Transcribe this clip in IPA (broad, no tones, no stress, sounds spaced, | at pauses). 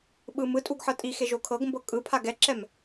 ɓ ɯ m ɯ tʼ u ɡ ħ ɤ tʼ i x e ʒ o kʰ ɤ ɡ m b ɤ kʼ ɯ pʰ a ɡ ɛ ǁ ɛ m